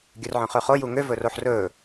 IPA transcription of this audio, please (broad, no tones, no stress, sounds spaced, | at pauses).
ɡʲ œ r ʕ œ̃ χ ø χ o j u ŋ ø v ɵ r o ħ r ɵː